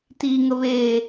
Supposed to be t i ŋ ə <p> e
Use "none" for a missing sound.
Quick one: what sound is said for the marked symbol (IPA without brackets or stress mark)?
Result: β